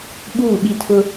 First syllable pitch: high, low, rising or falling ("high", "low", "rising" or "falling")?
falling